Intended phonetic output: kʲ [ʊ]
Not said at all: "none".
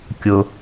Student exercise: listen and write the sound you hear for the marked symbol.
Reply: ʊ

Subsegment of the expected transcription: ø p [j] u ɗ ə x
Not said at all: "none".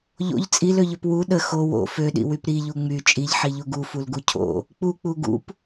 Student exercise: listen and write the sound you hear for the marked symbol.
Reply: w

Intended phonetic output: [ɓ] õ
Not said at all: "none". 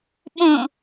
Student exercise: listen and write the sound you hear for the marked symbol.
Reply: ɓ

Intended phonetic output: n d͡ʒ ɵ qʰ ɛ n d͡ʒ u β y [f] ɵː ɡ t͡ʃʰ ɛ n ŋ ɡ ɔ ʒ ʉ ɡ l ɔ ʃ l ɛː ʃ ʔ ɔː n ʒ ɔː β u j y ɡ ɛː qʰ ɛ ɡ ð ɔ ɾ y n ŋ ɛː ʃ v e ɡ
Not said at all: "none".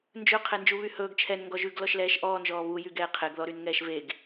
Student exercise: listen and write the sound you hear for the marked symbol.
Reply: h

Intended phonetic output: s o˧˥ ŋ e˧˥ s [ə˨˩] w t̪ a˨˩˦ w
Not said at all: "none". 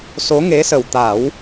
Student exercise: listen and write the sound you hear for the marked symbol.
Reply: ə˨˩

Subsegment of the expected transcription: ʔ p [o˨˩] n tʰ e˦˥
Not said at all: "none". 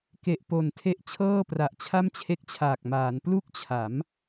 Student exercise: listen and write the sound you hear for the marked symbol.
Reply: o˨˩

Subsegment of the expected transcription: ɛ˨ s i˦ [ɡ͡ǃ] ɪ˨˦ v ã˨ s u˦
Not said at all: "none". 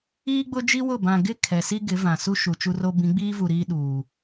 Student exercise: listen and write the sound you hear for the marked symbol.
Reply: ɡ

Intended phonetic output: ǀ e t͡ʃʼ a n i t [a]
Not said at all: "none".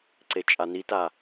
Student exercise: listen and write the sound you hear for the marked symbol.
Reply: a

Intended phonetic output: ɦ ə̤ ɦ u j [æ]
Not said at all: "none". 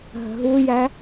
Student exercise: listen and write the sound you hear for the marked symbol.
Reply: æ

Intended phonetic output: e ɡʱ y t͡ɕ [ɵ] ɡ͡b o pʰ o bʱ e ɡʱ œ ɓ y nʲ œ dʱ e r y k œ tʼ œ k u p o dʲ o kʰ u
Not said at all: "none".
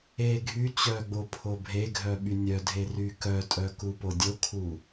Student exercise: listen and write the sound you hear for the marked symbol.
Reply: œ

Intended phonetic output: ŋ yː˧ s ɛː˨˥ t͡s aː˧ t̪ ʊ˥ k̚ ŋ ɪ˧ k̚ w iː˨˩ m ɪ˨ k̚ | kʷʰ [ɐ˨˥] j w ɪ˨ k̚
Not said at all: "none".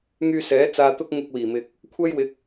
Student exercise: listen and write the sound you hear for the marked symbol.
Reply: ɐ˥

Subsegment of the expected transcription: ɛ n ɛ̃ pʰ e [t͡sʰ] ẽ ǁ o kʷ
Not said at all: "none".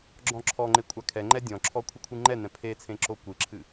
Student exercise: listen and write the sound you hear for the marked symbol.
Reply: t͡sʰ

